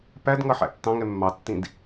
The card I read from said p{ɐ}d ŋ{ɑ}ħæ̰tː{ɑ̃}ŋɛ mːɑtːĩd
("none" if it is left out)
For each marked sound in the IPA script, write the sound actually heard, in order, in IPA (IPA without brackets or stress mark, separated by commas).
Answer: æ, ʌ, ɑ̃